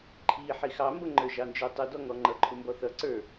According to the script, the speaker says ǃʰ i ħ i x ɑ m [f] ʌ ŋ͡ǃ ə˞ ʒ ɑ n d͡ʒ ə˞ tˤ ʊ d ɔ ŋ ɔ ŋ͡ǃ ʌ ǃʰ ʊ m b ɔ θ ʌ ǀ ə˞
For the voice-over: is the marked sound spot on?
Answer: no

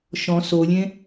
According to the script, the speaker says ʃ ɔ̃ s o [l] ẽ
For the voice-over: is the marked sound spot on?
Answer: no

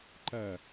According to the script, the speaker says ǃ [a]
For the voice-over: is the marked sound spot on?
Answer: no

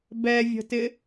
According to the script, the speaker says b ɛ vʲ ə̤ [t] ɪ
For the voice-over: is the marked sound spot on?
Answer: yes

